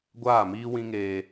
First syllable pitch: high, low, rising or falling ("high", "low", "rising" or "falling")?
falling